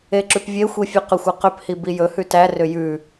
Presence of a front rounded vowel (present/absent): present